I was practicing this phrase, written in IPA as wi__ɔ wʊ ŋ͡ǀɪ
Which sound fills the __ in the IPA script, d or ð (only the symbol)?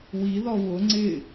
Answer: ð